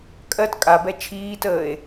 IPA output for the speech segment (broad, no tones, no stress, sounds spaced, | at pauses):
kʼ ɜ t kʼ a b ɛ t͡ʃʰ iː t əː e̯